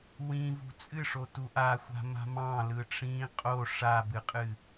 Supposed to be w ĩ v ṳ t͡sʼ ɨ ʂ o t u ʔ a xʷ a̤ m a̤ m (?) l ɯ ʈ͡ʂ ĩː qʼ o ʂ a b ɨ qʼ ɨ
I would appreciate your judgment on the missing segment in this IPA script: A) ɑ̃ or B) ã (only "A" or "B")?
A